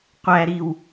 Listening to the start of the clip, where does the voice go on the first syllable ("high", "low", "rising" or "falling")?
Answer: high